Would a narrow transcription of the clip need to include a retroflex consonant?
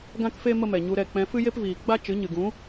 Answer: no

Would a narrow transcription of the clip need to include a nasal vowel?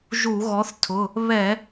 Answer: no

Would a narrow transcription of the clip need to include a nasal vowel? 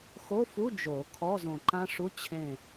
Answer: yes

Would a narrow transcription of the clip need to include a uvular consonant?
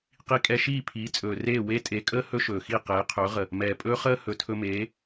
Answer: yes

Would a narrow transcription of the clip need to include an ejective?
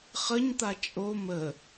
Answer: yes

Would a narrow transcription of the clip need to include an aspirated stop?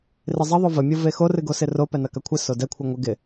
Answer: yes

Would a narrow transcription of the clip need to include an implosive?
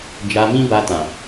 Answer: no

